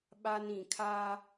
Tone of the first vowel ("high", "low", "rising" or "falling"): high